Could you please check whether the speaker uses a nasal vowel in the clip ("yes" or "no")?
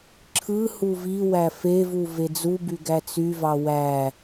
no